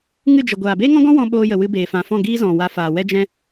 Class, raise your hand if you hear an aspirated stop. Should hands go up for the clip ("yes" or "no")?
no